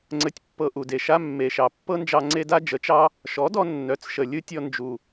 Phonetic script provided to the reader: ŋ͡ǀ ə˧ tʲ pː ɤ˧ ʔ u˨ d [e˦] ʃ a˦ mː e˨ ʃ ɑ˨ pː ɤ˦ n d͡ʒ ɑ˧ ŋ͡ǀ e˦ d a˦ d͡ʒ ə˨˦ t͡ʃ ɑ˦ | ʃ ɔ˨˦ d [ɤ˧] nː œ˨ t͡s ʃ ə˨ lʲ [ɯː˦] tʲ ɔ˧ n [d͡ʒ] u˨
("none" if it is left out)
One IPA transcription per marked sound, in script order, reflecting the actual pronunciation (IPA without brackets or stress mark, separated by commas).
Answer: e˨, ɔ˧, ɯ˦, d͡ʒ